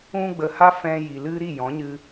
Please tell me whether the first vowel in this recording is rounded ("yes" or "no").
yes